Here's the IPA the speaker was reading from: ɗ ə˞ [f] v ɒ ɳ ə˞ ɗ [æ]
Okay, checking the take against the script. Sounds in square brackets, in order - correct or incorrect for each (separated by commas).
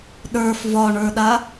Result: correct, incorrect